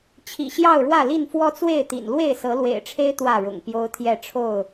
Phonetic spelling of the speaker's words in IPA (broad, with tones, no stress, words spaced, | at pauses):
t͡ɕʰḭ˨˩ɕjɑ˥˨ʊ̯ɻwä˥˨li˥˨n fwɔ˦t͡swe˥˨ɪ̯t̪ḭ˨˩n lwe˥˨ɪ̯sɤ˨˦lwḛ˨˩ɪ̯ʈ͡ʂʰe˦ɪ̯ t̪wä˥˨ɻʊ̰˨˩ŋpjo˦ʊ̯t̪ʰjɛ˥˨ ʈ͡ʂʰo˥˨ʊ̯